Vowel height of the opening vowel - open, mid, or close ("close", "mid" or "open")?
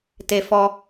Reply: mid